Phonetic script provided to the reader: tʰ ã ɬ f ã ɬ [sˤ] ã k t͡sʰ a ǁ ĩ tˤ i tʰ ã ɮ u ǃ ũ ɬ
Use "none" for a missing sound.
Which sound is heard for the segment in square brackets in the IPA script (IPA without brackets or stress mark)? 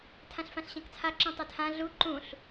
ɕ